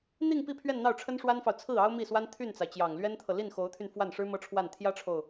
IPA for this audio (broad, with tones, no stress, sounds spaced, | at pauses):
n̪ i˥˧ ŋ p i˥˧ pʰ ɥ ɛ˥˧ n n̪ ɑ˥˩ ʊ̯ ʈ͡ʂʰ ə˥ n ʂ w a˥ n f ɑ˨ ʊ̯ t͡sʰ ɹ̩˥˩ ɑ˥ ʊ̯ m i˥˩ s w a˥ n t̪ʰ y˥˩ n t͡s a˩ ɪ̯ t͡ɕ j ɑ˨˩ ŋ l ɥ ɛ˥ n t̪ʰ ɤ˨ l i˥˩ n x o˧˥ ʊ̯ t̪ʰ y˧ n f w a˥˩ n ʂ ɻ̩˥ m ɤ˥ ʈ͡ʂʰ w a˥˩ n t̪ʰ j ä˥ ʈ͡ʂʰ o˨ ʊ̯